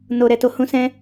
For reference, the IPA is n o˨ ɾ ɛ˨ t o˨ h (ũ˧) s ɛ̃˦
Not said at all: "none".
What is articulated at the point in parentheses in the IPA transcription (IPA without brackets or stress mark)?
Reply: ũ˧